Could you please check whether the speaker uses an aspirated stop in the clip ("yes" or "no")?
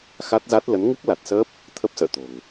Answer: yes